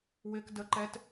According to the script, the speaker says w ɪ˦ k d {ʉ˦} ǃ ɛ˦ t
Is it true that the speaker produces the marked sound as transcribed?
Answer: no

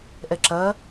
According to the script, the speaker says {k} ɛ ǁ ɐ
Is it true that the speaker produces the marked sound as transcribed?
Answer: no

